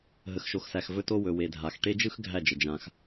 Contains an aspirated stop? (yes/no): no